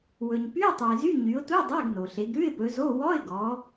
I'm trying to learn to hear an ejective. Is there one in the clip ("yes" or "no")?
no